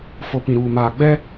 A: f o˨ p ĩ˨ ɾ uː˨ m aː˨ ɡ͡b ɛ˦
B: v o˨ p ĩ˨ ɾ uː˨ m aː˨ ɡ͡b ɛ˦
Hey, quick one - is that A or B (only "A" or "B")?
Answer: A